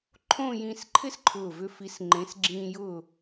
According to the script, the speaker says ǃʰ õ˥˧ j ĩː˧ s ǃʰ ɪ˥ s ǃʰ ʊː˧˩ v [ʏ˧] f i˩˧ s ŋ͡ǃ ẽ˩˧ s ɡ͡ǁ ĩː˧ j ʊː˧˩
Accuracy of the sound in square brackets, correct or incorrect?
correct